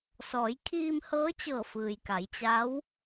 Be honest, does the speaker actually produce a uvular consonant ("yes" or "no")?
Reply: no